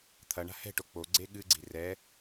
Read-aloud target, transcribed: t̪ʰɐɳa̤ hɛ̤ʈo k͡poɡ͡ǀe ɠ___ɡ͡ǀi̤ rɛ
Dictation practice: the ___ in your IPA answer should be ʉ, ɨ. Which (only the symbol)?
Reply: ɨ